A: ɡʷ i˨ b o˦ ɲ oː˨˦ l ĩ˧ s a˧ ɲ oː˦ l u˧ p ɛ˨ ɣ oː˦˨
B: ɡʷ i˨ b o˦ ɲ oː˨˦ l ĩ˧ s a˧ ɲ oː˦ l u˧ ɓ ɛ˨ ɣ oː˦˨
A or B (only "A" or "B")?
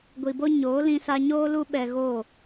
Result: B